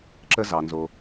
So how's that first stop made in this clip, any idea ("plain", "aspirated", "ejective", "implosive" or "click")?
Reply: click